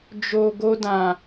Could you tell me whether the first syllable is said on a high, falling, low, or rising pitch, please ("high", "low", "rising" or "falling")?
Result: low